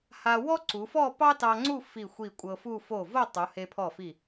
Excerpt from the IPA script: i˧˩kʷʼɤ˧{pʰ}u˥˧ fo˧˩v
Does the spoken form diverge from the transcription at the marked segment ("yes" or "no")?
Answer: yes